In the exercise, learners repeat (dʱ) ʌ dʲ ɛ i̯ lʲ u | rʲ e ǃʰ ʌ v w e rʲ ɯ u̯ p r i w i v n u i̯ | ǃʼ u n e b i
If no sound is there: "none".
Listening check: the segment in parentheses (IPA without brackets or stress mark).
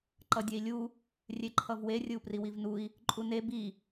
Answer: ǃ